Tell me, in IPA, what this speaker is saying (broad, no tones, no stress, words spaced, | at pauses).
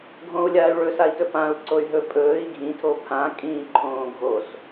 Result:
ɡʱõu̯lʲaːy̯ɭɵ sai̯tɵpãu̯ ǀoy̯ɦɵ pʼɵːi̯ ɡʱĩ tʰopʰã kʼĩːǃʰõːɡʱos